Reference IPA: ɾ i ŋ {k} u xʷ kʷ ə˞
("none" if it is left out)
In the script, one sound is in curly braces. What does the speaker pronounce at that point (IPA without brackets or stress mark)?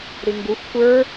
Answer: ɡ